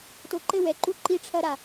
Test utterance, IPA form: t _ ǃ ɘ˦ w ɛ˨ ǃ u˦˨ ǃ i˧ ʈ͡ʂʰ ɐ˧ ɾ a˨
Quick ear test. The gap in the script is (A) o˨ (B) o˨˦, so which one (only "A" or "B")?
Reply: A